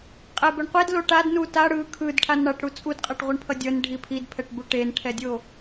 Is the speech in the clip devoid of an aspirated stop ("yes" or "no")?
no